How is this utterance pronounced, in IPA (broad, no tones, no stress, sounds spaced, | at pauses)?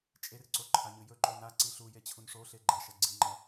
t͡ʃʼ e r ǀ o ǃʰ a ɲ ɨ j ɵ ǃ o n a ǀ i ɬ u j e t͡ɕʰ u n ʂ o ɬ e ɡ͡ǃ ɐ ʃ ɐ ɡ͡ǀ i ŋ͡ǃ ɐ